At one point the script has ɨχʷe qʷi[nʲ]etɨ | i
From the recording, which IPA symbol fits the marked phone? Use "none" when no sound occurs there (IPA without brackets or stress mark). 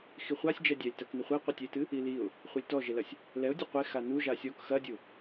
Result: tʲ